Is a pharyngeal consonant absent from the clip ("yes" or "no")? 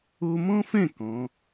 yes